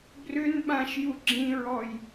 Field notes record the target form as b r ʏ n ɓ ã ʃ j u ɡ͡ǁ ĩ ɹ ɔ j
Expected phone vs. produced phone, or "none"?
none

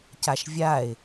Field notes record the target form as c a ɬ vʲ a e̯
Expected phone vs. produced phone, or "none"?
ɬ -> ʃ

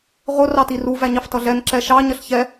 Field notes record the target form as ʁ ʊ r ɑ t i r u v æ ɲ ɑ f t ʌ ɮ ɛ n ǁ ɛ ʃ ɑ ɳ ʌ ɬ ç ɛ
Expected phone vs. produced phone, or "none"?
ɳ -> ɲ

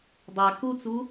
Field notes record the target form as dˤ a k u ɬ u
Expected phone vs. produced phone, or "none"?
ɬ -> t͡s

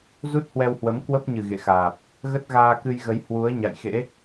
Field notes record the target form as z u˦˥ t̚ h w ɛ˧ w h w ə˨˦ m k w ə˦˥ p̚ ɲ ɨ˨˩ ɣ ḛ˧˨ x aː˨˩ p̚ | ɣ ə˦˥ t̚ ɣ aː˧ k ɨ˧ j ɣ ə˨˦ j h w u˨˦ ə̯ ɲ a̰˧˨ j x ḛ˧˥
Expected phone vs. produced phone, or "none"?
none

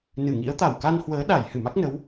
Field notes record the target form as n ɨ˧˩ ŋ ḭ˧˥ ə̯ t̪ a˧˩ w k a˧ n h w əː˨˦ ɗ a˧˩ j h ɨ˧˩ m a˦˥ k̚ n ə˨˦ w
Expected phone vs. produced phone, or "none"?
none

